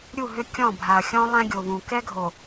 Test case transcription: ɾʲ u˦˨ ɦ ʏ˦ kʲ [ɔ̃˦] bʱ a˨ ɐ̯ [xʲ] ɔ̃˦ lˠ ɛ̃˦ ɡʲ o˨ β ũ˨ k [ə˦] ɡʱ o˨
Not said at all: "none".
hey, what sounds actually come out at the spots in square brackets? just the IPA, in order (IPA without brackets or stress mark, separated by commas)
ɔ̃˦˨, xʲ, ɛ˦